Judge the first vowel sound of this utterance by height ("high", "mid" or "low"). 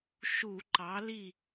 high